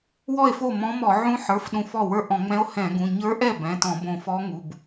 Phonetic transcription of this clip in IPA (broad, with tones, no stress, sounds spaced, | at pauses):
w ɔ˥˩ e̯ f o˥˩ m ɔ̃˧˥ m ɔ˧˩˧ ʕ ũ˧˥ ħ ə˞˩˧˩ f ɗ ũ˧˩ f ɔ˥˩ w ə˞˥˩ ʔ ɔ̃˧˩˧ ŋ͡m ɛ̃˧˥ o̯ h ɛ̃˧˩˧ ɡ ũ˩˧˩ ɲ ə˞˧˥ ʔ ɛ˥˩ b ɛ̃˩˧˩ t ɔ̃˧˩˧ b õ˧˩ f ɔ˧˥ ŋ u˩˧˩ b